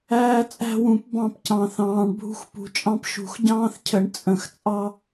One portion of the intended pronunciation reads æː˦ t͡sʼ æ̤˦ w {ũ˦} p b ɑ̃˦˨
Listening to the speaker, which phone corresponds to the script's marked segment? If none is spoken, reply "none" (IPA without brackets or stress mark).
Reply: ũ˨˩˦